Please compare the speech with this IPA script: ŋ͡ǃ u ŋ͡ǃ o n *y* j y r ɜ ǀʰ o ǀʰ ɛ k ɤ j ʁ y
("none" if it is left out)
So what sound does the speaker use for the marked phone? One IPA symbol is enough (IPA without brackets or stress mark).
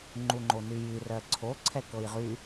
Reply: y